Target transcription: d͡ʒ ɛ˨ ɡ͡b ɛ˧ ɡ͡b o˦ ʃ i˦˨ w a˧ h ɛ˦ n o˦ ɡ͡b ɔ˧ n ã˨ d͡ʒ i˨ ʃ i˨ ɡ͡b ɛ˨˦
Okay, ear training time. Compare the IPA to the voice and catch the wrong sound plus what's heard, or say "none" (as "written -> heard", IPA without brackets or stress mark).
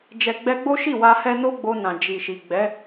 ɔ˧ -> o˧